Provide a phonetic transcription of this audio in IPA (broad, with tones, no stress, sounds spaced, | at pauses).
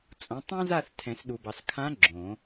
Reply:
t͡sʼ õ˩˥ tˤ õ˥ z a˥˨ θ tʰ ɛ̃˨˩˦ s ɗ u˨ b ɑ˨ s kʰ ã˧˥ ɡ͡ǁ õ˨˩˦